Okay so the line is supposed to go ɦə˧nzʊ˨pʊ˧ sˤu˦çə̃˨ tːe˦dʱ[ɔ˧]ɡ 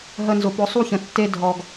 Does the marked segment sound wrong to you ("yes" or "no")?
no